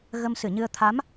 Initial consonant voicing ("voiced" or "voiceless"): voiced